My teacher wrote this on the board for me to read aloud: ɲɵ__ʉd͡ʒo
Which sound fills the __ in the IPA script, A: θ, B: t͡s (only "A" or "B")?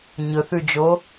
A